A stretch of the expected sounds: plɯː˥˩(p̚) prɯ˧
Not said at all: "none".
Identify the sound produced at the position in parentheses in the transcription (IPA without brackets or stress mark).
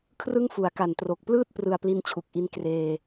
t̚